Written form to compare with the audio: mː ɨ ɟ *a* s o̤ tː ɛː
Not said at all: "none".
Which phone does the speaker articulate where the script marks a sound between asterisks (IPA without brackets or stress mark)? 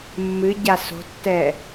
a